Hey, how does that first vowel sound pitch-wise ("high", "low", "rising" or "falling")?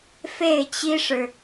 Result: falling